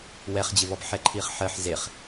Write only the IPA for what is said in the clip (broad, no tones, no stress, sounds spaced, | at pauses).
w ɛ χ d͡ʑ ɪ v ɔ b ħ ɛ ǃʰ i χ ħ ɜ ħ z e χ